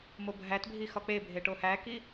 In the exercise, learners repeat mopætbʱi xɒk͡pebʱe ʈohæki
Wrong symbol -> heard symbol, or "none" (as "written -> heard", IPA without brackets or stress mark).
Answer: p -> bʱ